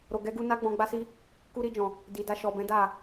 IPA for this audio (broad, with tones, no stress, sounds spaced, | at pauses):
ɾ o˨ ɡ ɛ˨˦ ɡ u˧ n a˦ ɡ͡b ɔ̃˧ ɡ͡b a˦ s i˦ | k u˧ ɾ i˧ d͡ʒ ɔ̃˨ | d i˨ d a˧ ʃ ɔ˨ b ɛ̃˨˦ d a˦˨